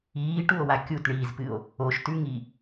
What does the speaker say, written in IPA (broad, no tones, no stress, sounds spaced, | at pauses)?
iː ʈ u o̯ w a kʲ u t ɳ iː z p ɨ o̯ | o ʃ t ʉ ŋ i